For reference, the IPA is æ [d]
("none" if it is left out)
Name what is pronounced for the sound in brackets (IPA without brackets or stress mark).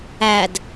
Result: d